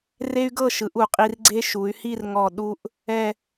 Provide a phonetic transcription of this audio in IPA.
re˥y̯ɡɤ˥˧ʃɯ˩˧ʔ u˧˩qʼi˧rɡ͡ǀe˥ ʃu˩˧y̯hi˥˧rŋɔ˧˩ ɗu˧ʔ | ɛ˥˧

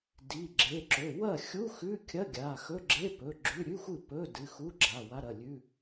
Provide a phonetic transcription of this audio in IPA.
di˩˧˩ɡ͡ǁe˩˧˩ǁɵ˩˧˩ wɐ˥˩xʲu˧˥˧xʉ˧˥˧kʲɐ˧˥˧ ɡʲa˩˧˩ xɵ˧˥˧ɡ͡ǁe˧˥˧pɵ˩˧˩ ɡ͡ǁʉ˧˥˧ ɾʲʉ˧˥˧xʷɨ˥˩pɵ˧˥˧ dɨ˩˧˩xu˧˥˧ ɡ͡ǁa˩˧˩wa˧˥˧ɾɐ˩˧˩ lʲʉ˧˥˧

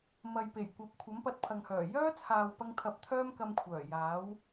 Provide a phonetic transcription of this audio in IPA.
mɐ˨jpe˨˩jkʷɐ˨˥p̚ kʷʰɐ˨˥mpɐ˧t̚ pʰɐ˨ŋhœː˨˩ jœː˥t͡sʰaː˨wpɐ˧ŋt̪ʰɐ˨p̚ t̪ʰœː˥mkɐ˧mkʷʰœː˨˩ jaː˨˥w

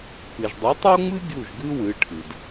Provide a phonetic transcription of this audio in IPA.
pɨ˩ʒdˤi˩˥tˤo˥ŋ͡mɨ˥ ɡʲu˥˩ʒɡɨ˥wɨ˩˥ʈʰɨ˩d

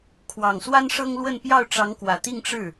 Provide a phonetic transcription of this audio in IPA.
kʰwɑ˨˩ŋswa˥nʂɤ˥ŋlwə˥˧n pjɑ˥˩ʊ̯ʈ͡ʂɑ˧˥ŋkwä˨˩ t̪i˥˧ŋʈ͡ʂɻ̩˥˩

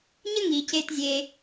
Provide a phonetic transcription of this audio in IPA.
ɲə˦ ŋi˨ce˧tzʲe˧

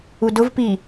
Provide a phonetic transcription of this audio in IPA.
udʊvpi

